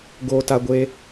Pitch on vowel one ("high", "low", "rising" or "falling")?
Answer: high